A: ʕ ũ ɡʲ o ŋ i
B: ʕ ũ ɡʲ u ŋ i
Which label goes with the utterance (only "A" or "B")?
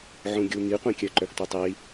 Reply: B